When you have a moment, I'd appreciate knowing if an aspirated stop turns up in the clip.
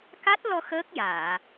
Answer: no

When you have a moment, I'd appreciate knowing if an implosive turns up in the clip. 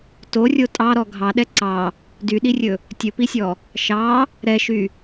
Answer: yes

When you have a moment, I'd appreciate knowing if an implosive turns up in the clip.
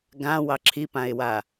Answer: no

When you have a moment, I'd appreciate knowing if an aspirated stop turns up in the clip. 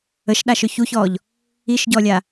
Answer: no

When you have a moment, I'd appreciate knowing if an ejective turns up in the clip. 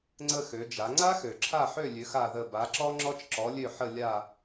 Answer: no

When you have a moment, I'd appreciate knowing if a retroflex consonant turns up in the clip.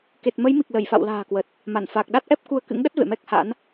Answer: no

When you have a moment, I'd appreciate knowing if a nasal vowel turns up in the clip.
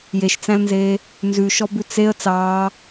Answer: yes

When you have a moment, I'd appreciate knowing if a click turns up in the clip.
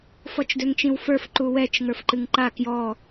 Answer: yes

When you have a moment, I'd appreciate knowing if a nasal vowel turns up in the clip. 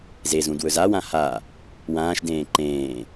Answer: yes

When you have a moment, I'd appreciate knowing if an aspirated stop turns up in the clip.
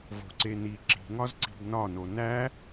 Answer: no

